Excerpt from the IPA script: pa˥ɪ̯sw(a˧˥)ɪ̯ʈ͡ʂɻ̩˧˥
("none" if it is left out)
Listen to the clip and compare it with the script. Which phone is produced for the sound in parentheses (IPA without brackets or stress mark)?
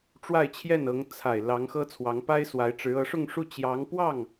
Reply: a˧˥